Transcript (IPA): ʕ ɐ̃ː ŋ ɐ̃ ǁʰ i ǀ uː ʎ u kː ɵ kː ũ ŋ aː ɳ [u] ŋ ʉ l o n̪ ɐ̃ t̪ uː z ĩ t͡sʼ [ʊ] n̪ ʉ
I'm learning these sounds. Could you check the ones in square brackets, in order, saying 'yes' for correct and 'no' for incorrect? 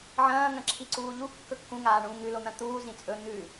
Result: no, no

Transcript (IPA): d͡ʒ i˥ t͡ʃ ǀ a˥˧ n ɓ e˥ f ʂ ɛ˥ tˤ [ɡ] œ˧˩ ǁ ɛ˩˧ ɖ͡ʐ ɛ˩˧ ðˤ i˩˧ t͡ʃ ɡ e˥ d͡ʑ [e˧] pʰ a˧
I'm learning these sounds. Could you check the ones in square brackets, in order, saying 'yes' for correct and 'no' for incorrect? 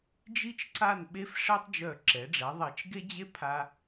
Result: no, no

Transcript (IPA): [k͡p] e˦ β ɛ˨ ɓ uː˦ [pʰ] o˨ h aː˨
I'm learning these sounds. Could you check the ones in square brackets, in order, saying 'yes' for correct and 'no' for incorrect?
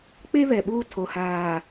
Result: yes, no

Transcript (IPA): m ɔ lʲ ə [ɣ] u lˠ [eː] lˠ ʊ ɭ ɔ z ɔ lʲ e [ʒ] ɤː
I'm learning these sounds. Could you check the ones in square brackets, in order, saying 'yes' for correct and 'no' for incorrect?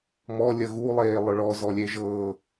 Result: yes, yes, yes

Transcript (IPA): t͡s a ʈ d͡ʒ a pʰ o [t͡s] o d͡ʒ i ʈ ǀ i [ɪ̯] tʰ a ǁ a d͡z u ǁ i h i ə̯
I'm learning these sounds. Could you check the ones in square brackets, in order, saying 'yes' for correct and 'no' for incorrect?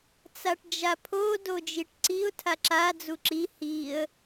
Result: no, no

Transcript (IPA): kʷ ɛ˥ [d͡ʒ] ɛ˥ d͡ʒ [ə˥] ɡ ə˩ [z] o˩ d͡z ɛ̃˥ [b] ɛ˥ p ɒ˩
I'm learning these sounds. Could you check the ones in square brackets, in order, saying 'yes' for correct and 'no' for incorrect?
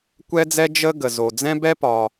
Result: no, yes, yes, yes

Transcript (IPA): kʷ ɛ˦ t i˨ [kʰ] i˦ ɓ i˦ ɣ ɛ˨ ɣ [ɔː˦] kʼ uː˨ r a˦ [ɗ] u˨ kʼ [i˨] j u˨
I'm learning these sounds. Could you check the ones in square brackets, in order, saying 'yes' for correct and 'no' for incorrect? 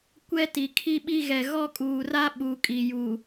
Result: yes, no, no, yes

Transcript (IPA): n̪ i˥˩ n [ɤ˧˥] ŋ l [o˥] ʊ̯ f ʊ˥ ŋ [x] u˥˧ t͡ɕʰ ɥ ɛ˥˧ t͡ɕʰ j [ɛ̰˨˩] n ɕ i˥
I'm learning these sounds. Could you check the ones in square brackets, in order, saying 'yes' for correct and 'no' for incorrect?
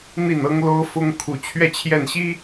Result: no, yes, no, no

